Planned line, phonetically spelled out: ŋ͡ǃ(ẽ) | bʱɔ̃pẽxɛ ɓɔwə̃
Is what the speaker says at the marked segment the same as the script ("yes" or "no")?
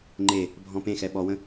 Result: no